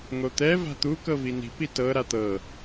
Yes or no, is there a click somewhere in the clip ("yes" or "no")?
no